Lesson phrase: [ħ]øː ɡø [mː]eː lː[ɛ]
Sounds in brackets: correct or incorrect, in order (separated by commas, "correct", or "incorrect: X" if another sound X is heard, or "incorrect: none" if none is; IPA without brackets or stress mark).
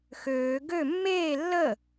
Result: incorrect: x, correct, incorrect: ə